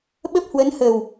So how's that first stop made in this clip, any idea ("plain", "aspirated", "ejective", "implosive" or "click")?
implosive